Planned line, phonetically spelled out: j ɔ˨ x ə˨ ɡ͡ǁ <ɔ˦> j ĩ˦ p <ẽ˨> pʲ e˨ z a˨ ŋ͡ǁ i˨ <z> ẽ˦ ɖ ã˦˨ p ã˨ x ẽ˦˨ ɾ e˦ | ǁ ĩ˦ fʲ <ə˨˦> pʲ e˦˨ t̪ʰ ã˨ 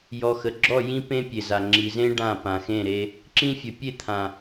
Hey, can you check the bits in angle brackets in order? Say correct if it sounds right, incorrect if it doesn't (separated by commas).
incorrect, incorrect, correct, correct